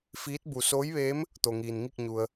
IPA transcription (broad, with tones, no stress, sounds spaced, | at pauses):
f iː˧˥ t̚ b u˩ s oː˧˥ j ʋ eː˧˥ m | t̪ o˩ ŋ iː˩ n ŋ i˥˨ k̚ ɲ u˩ ə̯